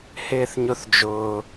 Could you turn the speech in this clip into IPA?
hɪː˥θɲʊ˥θd͡ʒʊː˦

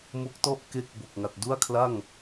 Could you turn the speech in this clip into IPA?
mo˦˥k̚tɔ˥˩ʔ ke˥˩k̚ bo˨˩k̚ŋa˨˩t̚du˥˩a̯kʰla˥˩ŋ

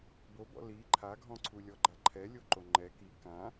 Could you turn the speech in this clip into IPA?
bobɔ̰ li ǃʰaɡʱɔ̃ǀʰu lʲɔɡ͡ǃaǃʰɛ lʲoǃoŋ͡ǃɛ ki kã

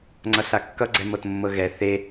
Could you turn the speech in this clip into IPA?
ŋ͡ǀʌɬakːʌ ɡ͡ǀɛmɤtmːɤɣɛ θe

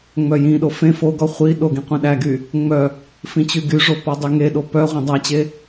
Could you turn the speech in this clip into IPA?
ŋ͡mœjĩɗo fẽ foɡɔ χʷi ɗoɡĩ qʷẽɗæɡy | ŋ͡mœ | fĩt͡ɕyɡyʐo pɔdˤyŋeɗo pœ ʁʷẽdˤæt͡ɕe

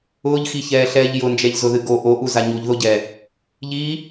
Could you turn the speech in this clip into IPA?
ʊːʎxiçɛːɬɛːʎ jʊnd͡ʒɛʎzʊðɨ ɡo ʔoʔuza ɲuʎðoɟɛː | ʎiː

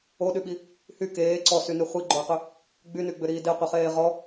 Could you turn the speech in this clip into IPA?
oɗyɓi | hy keː ǀɔsyny χʷiɡ͡ǃoɐ̯qʏ | ɡ͡bynyɡ͡bʏɾiː deqʷeχeː ʁɔ

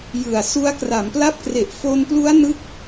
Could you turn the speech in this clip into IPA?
jɯ˨˩a̯su˦˥a̯ kra˩˦mpla˦˥p̚kre˨˩ʔ fo˧nplu˦˥a̯nɯ˦˥k̚

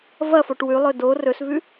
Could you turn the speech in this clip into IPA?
vɐfoʈ wʉlˠɵ do rɵsvʉ

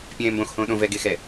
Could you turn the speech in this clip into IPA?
pʲɛ̃ːmbõx hõːɗõ vɛɡ exɛ

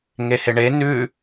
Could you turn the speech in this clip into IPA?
ŋeheɳe nʉ

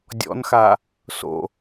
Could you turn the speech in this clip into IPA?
dʲɔ̰nxa | so̰

